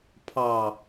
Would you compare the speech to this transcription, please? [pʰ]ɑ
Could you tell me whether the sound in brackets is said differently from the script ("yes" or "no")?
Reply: no